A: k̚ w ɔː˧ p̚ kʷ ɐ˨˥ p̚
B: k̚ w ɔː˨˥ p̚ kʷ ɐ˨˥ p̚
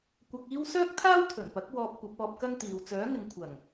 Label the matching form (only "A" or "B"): A